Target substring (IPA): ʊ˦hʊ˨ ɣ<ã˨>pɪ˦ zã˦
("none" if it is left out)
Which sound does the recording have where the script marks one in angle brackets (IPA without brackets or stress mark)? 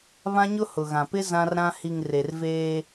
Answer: ã˨